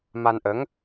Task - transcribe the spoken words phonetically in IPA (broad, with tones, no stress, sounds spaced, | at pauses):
m a˧ n ʔ ə˧˥ ŋ